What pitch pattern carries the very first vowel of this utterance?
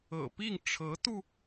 low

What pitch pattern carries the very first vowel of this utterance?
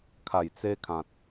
low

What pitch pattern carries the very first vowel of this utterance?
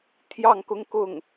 falling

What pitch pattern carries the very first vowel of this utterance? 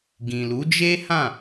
low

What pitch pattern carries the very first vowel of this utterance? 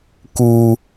high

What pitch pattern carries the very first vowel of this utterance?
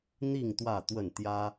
falling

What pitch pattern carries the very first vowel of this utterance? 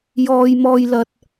low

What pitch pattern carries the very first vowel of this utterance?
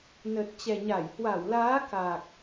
low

